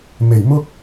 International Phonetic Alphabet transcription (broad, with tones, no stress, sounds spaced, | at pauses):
m e˨˩ j m ʊ˥ k̚